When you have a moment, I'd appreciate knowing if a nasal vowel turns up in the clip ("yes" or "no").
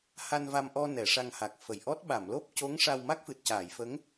no